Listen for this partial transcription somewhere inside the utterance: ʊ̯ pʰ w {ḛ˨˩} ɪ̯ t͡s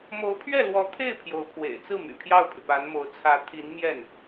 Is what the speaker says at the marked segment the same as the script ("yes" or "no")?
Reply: yes